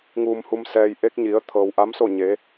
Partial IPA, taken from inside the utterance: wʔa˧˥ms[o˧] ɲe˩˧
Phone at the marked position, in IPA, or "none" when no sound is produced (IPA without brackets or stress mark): o˥˨